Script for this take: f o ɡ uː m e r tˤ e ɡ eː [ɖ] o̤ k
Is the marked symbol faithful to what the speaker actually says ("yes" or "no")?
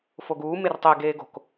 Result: no